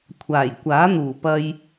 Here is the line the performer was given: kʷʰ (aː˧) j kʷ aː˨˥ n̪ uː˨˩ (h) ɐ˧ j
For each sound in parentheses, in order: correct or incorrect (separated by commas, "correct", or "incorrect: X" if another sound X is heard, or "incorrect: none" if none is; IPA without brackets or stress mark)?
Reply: incorrect: aː˨˩, incorrect: p